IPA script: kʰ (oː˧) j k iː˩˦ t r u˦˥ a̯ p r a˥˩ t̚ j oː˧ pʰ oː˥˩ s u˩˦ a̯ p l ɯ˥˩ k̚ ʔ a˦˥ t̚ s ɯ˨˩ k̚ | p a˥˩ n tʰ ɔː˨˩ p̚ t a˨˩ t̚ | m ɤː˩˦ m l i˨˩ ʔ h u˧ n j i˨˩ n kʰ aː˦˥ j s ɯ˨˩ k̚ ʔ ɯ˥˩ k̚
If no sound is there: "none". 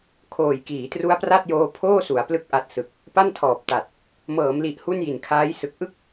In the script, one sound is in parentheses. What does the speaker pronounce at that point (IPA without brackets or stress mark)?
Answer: oː˨˩